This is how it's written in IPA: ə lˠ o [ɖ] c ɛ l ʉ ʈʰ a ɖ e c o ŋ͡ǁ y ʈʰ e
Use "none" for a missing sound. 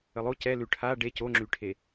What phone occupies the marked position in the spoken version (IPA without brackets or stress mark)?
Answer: none